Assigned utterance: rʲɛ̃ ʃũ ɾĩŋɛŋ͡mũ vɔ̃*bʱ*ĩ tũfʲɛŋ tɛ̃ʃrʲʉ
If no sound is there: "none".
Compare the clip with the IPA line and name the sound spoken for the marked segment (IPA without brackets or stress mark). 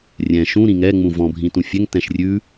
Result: bʱ